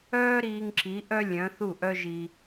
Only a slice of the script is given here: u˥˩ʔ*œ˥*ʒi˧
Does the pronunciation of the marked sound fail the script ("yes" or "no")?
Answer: no